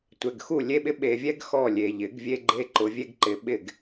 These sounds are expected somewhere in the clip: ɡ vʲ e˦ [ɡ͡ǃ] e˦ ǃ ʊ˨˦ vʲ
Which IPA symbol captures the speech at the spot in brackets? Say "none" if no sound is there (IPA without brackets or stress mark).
ɡ͡ǃ